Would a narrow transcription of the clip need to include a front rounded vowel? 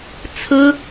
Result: no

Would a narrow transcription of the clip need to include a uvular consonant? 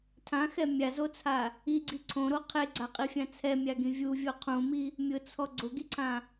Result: yes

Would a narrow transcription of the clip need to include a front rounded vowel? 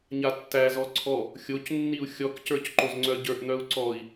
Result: yes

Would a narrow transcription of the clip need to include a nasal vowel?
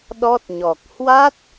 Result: no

